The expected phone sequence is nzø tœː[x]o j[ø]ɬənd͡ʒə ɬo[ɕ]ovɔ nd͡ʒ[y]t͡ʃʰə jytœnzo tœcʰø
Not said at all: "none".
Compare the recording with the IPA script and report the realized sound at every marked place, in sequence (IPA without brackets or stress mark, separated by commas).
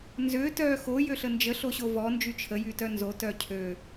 x, ø, ɕ, y